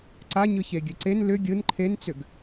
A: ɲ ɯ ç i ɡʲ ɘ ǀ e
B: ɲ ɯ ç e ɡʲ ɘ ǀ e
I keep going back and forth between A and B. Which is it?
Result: B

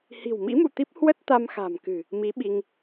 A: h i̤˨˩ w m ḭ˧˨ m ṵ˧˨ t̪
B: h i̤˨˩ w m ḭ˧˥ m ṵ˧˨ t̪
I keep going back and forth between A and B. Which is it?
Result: B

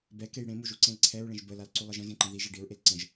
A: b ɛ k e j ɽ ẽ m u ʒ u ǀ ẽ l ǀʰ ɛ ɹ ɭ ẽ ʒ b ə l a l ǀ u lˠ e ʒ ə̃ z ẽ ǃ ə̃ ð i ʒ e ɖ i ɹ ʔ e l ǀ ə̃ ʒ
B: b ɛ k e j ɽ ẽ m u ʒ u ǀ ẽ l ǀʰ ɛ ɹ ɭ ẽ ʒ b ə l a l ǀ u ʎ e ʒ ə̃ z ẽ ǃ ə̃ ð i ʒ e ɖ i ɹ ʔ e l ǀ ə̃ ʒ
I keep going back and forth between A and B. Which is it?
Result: A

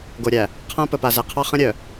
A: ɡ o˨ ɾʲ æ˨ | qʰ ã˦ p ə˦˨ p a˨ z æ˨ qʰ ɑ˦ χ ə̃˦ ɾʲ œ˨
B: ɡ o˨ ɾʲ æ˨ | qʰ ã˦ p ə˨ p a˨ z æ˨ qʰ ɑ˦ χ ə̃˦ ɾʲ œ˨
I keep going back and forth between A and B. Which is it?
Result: B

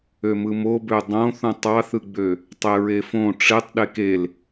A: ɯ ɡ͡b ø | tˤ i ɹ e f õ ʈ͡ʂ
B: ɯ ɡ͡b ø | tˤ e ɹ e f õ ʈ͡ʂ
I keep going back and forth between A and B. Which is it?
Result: B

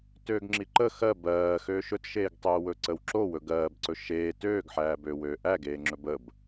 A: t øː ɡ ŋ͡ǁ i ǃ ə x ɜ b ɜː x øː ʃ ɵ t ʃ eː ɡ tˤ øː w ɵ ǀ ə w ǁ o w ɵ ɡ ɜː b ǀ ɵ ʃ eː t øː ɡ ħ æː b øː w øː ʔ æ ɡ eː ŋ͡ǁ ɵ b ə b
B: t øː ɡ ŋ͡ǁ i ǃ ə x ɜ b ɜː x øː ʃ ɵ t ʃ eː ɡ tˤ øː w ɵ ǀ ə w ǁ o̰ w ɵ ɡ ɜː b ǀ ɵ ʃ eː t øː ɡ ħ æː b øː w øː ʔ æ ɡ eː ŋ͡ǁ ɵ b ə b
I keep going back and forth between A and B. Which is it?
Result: A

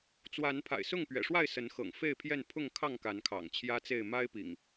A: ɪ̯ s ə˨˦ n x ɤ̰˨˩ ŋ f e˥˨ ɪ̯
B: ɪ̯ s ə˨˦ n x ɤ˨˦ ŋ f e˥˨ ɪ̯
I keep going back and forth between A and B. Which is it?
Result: A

